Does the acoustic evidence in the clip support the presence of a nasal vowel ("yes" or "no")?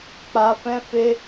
yes